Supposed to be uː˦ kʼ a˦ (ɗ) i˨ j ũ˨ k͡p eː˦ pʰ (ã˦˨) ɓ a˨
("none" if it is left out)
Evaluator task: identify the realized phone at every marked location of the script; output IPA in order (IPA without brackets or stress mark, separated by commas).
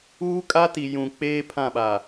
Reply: t, ã˦˨